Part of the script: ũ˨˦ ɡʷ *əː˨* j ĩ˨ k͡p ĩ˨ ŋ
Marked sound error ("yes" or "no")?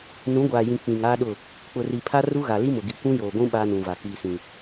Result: yes